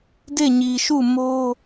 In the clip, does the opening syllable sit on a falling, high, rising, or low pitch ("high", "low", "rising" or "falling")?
falling